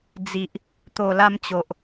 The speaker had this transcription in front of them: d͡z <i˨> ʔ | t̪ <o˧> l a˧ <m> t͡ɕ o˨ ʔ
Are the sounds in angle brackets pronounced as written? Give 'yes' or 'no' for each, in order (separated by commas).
yes, no, yes